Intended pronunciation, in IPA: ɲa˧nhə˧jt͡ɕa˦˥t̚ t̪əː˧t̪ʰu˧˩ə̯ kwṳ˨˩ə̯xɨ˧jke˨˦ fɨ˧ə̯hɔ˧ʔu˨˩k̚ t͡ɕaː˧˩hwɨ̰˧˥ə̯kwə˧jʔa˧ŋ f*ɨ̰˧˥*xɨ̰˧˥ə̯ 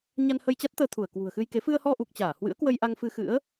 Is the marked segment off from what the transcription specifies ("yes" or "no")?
yes